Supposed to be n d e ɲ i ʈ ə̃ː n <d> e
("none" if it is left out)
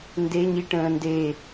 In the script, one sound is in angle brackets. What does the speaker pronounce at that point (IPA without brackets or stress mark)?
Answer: d